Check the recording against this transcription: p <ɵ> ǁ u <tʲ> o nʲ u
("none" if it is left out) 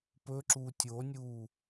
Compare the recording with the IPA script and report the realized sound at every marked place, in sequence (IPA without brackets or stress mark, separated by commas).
ɵ, tʲ